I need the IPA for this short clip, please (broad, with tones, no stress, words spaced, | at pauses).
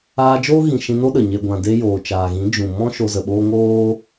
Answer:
aː˧ d͡ʒoː˦ɣĩ˨ ʃĩ˧no˦ɗə˨ ɲe˨ɡʷã˨de˧ joː˨t͡ʃaː˨ɣĩ˨˦ d͡ʒũ˨ mɔ̃˦ ʃo˧zə˨ɓoː˦ ŋoː˦